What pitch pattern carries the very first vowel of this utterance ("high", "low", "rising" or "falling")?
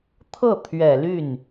falling